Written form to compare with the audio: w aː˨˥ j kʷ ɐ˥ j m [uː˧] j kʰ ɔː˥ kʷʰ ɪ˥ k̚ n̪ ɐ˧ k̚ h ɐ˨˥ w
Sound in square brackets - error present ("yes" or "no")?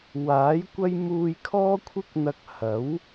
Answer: no